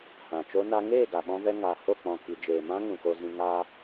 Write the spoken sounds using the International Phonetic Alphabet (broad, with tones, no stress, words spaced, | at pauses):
hã˨t͡ʃo˦na˦ ŋeː˦˨ɡa˨ɓɔ̃˧vɛ˧ ŋa˨ho˦˨k͡pɔ̃˨ ki˨d͡ʒeː˨mã˦ ŋũ˨ko˧zĩ˧ ŋa˧